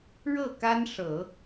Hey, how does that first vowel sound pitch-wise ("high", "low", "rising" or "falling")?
falling